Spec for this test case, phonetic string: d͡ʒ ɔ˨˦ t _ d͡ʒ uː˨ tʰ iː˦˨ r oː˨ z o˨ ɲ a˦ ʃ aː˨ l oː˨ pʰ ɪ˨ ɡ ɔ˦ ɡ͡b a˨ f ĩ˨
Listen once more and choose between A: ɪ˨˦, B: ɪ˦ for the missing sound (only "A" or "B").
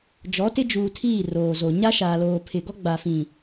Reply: B